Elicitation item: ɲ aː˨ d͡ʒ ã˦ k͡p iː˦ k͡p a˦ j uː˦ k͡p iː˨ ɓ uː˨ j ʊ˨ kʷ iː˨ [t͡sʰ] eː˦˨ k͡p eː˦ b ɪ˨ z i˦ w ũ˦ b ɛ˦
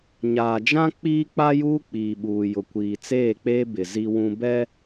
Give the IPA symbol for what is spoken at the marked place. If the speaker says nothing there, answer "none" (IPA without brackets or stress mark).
t͡s